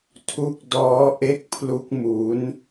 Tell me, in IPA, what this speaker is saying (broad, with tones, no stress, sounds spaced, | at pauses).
tʰ u˦˥ k̚ d ɔː˦˥ ʔ e˦˥ k̚ pʰ l u˦˥ k̚ m u˦˥ n